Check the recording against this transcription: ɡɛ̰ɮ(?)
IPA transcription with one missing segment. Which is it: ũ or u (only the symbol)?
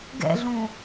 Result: ũ